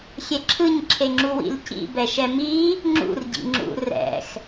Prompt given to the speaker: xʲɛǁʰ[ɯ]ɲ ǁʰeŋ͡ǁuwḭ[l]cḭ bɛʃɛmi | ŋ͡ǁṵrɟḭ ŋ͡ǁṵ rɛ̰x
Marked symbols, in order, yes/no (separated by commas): yes, yes